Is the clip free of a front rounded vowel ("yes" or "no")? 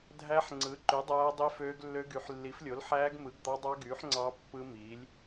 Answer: no